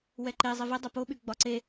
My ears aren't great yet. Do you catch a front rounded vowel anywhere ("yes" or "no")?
yes